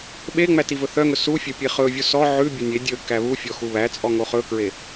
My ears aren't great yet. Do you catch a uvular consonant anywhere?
yes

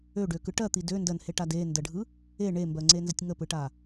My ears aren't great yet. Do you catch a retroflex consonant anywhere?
yes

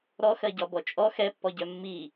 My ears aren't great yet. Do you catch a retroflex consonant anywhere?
no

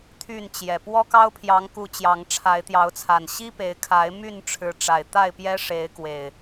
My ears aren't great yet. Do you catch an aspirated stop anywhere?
yes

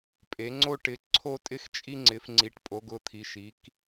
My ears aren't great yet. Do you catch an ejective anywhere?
yes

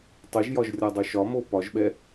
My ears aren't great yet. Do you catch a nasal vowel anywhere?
no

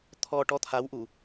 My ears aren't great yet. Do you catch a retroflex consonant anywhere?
yes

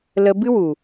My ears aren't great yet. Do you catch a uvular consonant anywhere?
no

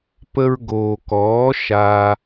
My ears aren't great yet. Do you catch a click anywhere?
no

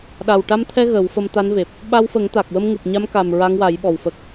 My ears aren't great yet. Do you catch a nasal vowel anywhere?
no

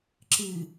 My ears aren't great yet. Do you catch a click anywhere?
yes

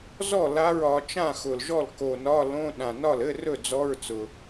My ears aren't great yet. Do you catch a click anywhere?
no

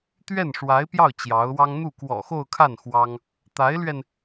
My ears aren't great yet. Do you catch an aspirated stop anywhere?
yes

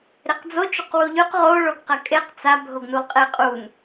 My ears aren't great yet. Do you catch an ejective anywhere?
yes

